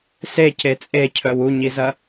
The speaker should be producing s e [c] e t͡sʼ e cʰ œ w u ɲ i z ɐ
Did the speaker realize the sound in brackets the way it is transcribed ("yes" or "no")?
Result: yes